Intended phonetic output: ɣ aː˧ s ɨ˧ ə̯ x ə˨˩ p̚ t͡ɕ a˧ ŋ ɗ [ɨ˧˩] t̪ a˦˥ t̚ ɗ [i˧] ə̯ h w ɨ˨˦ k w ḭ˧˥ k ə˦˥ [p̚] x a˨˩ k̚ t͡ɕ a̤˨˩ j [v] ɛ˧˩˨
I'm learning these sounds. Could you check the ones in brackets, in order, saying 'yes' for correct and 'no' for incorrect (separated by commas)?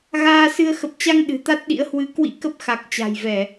no, no, yes, yes